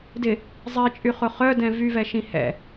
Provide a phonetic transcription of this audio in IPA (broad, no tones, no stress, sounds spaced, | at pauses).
d ɪ | zˤ i t͡ʃʼ y χ ʊ χ œ d ɛ̃ v y v ɛ ʃ ĩ h ɛ̰